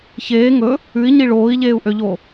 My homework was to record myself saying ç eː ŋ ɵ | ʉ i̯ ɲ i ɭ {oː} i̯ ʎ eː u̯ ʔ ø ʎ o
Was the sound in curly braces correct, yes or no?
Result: yes